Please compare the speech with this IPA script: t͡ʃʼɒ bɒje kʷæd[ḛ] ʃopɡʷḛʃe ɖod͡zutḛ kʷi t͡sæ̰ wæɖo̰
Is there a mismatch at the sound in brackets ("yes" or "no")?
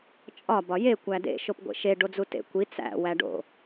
no